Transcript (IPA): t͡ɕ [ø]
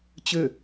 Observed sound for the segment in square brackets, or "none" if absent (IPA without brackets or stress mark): ø